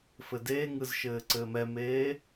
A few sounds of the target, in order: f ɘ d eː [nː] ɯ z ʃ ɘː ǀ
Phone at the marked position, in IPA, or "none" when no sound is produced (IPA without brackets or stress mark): ŋ